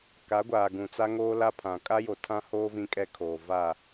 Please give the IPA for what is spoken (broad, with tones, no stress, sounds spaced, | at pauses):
k a˨˦ ɡʷ aː˨ ɡ ũ˨ t͡s a˦ ŋ oː˦ l a˦ pʰ ã˨ kʼ a˦ j o˨ tʰ ã˦ h oː˦ v ĩ˦ kʼ ɛ˦ kʰ oː˨ v a˦˨